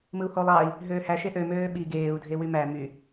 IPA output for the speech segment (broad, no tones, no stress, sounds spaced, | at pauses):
m ɯ u̯ h o lˠ ɑ i̯ | ɦ øː h æ ʃ e ʔ ø m øː ɓ i ɡ eː u̯ dʱ e w y m æ m y